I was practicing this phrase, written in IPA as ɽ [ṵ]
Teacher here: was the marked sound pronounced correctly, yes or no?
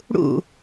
yes